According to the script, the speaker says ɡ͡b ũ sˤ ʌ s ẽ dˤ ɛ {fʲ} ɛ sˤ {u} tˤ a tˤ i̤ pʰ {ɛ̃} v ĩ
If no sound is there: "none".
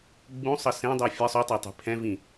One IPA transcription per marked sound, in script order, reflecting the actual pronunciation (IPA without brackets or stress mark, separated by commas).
fʲ, u, ɛ̃